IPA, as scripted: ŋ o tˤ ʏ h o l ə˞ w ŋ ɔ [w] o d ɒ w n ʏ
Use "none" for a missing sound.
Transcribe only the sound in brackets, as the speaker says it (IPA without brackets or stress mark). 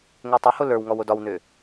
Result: w